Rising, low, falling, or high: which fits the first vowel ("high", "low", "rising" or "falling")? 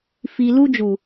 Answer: low